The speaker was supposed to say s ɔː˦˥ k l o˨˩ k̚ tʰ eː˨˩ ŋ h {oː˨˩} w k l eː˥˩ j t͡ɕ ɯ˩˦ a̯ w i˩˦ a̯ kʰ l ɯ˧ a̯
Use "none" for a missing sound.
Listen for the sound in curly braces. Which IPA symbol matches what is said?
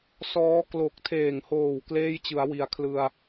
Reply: oː˨˩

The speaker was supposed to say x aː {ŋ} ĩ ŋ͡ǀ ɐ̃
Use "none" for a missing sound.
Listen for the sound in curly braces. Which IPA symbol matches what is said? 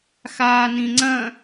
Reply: n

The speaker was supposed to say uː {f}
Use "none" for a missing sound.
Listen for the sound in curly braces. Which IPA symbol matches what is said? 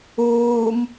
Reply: m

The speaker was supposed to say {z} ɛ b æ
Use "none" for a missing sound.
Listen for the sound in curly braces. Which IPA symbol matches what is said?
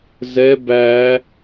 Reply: z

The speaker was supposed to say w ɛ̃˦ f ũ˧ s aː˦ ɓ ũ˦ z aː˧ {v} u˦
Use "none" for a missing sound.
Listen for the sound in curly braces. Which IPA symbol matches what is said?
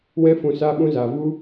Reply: v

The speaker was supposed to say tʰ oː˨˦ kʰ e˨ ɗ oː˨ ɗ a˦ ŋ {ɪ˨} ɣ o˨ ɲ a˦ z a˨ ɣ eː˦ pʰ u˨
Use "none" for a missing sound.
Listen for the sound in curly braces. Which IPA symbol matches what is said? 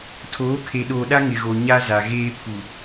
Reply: ɪ˨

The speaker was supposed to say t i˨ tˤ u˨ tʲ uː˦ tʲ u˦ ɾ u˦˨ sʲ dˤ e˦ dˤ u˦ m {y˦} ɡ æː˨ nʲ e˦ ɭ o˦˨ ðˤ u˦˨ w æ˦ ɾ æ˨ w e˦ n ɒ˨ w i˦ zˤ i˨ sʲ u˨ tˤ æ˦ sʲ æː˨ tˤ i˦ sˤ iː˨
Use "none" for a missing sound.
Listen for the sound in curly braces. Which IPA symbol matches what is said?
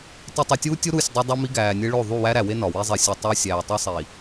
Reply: i˦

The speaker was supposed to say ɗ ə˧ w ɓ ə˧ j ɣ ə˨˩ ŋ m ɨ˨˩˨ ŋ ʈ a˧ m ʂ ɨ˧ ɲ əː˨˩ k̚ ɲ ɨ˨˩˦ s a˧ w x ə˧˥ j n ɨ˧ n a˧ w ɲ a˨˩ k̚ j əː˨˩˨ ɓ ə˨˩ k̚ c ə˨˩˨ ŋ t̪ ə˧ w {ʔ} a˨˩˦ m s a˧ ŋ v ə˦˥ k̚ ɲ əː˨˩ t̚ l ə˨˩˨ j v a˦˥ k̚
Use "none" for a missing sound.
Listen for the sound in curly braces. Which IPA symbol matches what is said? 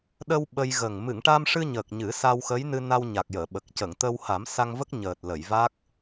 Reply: h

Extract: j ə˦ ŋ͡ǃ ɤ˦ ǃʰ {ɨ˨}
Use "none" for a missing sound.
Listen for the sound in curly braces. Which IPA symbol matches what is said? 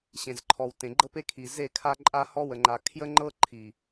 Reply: i˨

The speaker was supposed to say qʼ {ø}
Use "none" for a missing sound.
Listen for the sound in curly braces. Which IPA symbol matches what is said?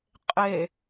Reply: e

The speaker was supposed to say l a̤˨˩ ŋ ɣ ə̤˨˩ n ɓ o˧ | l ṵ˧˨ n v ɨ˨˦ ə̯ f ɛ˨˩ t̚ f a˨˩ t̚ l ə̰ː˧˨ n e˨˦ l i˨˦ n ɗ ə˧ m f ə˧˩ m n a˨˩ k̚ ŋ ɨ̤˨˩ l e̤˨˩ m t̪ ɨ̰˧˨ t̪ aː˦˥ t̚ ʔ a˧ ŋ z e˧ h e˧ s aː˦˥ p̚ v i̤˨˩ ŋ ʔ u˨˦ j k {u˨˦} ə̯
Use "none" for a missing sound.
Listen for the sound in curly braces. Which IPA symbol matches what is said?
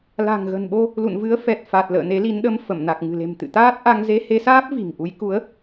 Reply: u˨˦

